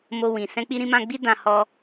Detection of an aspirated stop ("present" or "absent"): absent